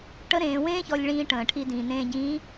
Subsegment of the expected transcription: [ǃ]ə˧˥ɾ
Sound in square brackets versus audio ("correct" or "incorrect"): incorrect